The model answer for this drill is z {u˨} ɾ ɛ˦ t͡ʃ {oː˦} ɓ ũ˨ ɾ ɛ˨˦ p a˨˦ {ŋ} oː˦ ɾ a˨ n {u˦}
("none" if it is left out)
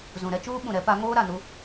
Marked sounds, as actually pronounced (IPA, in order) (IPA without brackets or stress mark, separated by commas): ũ˨, uː˦, ŋ, u˦